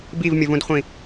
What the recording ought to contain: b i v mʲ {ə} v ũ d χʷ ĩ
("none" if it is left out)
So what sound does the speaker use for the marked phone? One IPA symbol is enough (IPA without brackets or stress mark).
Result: ə